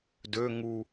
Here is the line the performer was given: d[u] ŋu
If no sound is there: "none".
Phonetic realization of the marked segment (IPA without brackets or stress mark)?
ø